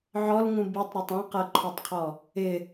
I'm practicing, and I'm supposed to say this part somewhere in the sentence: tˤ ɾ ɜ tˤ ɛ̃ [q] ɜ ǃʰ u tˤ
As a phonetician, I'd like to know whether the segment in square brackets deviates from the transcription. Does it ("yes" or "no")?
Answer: no